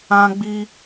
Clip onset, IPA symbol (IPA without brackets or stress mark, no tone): ã